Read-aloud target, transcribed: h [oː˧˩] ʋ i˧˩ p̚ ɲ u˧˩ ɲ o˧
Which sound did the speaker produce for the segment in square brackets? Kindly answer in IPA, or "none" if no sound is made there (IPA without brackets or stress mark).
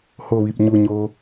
o˧˩